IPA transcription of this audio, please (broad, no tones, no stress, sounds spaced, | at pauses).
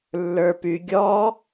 lː ə˞ p y ɡʲ ɔ